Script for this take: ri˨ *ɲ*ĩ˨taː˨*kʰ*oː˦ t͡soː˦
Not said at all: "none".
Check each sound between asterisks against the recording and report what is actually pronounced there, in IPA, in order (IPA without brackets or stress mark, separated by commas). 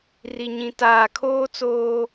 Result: ɲ, kʰ